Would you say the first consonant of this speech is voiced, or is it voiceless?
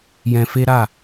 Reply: voiced